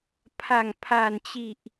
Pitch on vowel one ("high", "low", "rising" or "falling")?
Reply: low